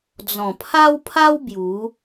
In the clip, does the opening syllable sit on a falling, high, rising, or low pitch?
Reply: low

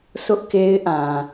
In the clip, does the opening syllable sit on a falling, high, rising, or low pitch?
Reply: high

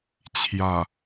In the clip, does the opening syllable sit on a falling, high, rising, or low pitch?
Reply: low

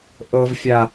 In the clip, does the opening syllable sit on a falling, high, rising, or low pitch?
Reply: high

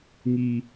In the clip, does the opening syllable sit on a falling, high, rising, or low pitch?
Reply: high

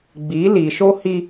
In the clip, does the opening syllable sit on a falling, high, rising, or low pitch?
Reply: rising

